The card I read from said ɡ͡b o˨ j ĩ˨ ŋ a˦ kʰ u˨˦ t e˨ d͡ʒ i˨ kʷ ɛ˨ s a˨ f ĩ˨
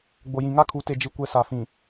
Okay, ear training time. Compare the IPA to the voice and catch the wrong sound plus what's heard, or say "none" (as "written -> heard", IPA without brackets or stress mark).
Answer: none